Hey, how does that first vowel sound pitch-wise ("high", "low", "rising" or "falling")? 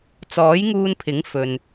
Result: rising